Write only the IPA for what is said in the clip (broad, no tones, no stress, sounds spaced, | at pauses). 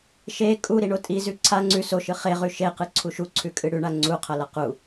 ʃ e kʼ u ɾ i ɳ o tʼ i z ʉ ǀʰ a ŋ͡ǀ ʉ s o ʃ ɨ χ e ʁ ʉ ʃ e q ɨ ǀʰ u ʃ u ǀʰ ʉ kʼ ɨ ɽ ʉ ɳ a ŋ͡ǀ u qʰ ɐ l ɐ q u